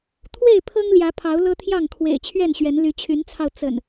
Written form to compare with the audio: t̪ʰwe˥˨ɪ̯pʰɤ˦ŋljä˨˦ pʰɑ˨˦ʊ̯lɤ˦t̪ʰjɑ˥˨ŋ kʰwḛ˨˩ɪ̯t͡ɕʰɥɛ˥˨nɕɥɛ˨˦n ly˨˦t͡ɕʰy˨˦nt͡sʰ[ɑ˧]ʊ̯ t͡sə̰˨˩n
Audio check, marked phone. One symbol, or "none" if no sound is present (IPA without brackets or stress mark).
ɑ˧